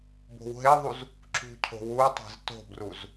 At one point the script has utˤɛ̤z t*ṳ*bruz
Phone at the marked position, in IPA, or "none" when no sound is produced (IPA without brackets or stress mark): o̤